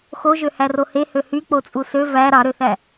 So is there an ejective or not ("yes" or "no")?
yes